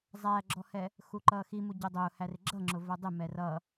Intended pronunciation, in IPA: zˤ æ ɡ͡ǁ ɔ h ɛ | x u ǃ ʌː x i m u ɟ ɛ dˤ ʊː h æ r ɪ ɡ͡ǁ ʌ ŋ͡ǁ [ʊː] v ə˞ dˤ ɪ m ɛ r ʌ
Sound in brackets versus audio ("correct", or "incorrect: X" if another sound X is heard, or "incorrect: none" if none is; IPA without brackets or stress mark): incorrect: ʊ